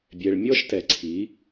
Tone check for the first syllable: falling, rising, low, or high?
low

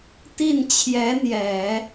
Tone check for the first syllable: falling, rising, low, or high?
falling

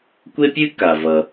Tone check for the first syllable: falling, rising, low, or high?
high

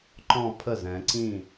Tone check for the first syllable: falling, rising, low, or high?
falling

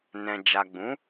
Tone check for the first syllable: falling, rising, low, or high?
low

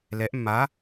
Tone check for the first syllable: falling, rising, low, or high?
rising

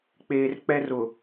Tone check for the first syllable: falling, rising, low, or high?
low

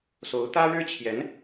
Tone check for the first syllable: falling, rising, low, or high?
rising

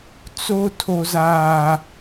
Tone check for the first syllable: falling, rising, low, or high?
high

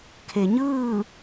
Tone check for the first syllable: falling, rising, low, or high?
low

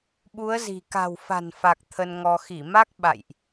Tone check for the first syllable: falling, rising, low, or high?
rising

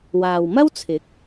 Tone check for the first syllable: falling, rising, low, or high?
low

